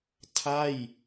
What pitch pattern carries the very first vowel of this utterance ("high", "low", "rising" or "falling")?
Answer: falling